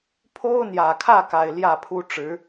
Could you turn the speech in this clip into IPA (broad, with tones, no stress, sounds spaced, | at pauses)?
pʰ o˥ ʊ̯ n̪ j ä˨˩ kʰ ä˥˩ k a˨˩ ɪ̯ l j ä˥˩ pʰ u˥ ʈ͡ʂ ɻ̩˧˥